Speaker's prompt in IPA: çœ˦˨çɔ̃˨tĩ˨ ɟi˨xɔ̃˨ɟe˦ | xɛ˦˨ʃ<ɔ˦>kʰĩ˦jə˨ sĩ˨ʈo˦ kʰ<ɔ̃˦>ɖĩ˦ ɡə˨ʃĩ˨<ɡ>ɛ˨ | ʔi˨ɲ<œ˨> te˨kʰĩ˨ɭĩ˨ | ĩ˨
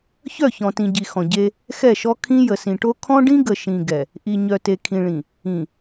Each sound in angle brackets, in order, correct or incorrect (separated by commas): correct, correct, correct, correct